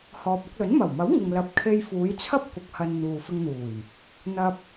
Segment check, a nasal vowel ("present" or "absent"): absent